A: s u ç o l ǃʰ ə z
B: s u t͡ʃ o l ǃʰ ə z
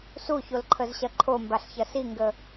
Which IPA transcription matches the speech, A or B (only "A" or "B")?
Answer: A